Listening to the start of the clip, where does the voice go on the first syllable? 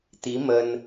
rising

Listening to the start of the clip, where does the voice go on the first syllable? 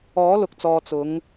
rising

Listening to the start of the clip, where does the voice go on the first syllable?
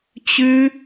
high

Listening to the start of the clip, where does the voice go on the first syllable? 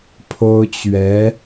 high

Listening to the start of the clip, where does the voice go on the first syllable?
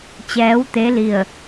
rising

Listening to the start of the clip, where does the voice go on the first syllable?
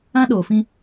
high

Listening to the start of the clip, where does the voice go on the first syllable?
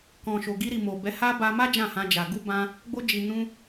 low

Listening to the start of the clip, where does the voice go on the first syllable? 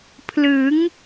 rising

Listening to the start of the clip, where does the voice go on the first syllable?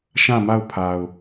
falling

